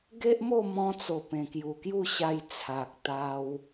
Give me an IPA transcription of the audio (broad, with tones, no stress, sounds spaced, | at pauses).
ɡ e˦ ʔ m o˥˧ m ɔ̃˧ t͡s o˨˩ p ẽ˨˩ k j u˨˩ k j u˥˧ ɕ a˧ j t͡sʰ a˨ k̚ t̪ a˧ w